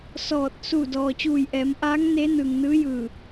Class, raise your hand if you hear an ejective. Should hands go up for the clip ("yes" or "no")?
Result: no